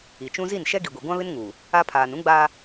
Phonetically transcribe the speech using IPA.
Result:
i˨t͡ʃũ˦ zi˦˨nʃɛ˦ɡi˨ɡʷi˨ ɡʷã˦βɪ˦nŋuː˨ | a˦ pʰaː˨nũ˦ɡ͡baː˦

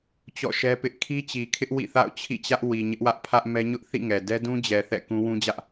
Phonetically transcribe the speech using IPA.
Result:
t͡ɕɔ̰˦˨ʃɛ˦pɪ˦ʔ kʰi˦t͡ɕi˨kʰɪ˦ʔ wḭ˦˨θa̰˦˨ʊ̯ t͡ɕʰḭ˦˨t͡ɕä˦ʔ wi˨ɲɪ˦ʔwä˦ʔ pʰä˦ʔmɛ˦ɲʊ˦ʔ θḭ˦˨ŋɛ˨dɛ˦ dũ˦d͡ʑɛ˨ θɛ̰˦˨ kũ˦wũ˦d͡ʑä˦ʔ

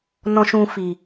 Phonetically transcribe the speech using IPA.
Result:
nɔ̃˦ʃũ˦fi˧

